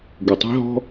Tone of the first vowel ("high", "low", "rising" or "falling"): low